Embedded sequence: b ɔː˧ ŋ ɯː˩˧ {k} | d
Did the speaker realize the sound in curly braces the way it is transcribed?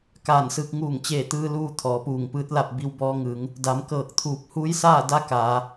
no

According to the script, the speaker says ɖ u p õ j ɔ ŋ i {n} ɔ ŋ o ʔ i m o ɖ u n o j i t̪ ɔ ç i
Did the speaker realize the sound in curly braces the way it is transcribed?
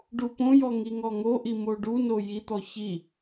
no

